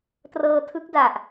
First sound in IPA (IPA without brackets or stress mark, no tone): t